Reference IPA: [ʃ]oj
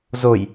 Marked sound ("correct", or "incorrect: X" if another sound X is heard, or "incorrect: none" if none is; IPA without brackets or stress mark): incorrect: z